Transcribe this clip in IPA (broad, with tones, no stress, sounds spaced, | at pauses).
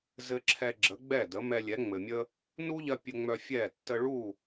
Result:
z ɘ˧ ǁʰ ɛ˧ ɡ͡ǁ ə˩˥ ɡ͡b ɛ˥˩ d ə˩˥ m ɛ˧ lʲ ɛ˩˥ ŋ͡m ɘ˩ mʲ ə˥ | n u˥ ʎ ɜ˧ pʲ ɘ˧ ŋ͡m œ˧ fʲ ɛ˥˩ tː ə˧ ɭ u˥˩